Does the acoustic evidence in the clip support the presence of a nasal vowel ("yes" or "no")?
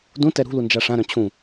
yes